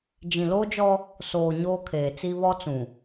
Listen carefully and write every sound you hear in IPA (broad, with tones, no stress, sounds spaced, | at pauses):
d͡ʒ ĩ˨ l oː˦ d͡ʒ ɔ˦ | s oː˨ ɲ oː˦ kʰ eː˨ t͡s i˦ β ɔ˦ t͡s ũ˨